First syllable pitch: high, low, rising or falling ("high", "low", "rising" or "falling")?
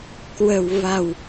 low